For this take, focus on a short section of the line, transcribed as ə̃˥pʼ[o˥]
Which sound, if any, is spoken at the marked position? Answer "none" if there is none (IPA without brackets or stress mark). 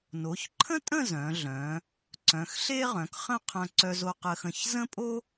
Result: o˥